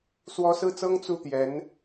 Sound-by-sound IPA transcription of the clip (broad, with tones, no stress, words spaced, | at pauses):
swɔ˧˥ sɹ̩˥˩t͡sɤ˥ŋ t͡su˥˩t̪jɛ˧˥n